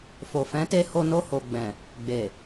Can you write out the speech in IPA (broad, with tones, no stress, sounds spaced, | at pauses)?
f o˨ f ɛ̃˨˦ t e˧ h o˧ n o˧ h o˨ ɡ͡b ɛ̃˨ | ɡ͡b e˨